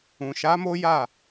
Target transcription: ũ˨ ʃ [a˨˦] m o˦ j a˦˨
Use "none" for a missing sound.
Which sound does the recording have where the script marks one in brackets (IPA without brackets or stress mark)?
a˨˦